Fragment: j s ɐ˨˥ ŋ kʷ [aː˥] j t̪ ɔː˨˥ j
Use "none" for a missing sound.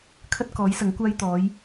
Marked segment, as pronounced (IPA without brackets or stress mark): aː˥